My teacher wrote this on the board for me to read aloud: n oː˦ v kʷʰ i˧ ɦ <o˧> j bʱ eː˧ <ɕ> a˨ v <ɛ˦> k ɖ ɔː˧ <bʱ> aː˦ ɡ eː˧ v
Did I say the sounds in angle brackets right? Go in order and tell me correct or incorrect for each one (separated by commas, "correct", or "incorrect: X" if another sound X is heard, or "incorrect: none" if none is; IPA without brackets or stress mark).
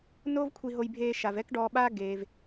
correct, incorrect: ʃ, correct, incorrect: ɓ